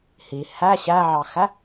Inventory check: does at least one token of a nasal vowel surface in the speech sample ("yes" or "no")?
no